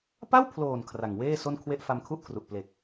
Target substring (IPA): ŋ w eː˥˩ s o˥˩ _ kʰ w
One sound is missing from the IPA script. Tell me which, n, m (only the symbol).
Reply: n